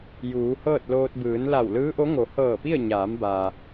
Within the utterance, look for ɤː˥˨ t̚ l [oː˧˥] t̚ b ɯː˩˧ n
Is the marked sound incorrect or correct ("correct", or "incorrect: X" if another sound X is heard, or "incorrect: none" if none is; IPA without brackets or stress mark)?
incorrect: oː˧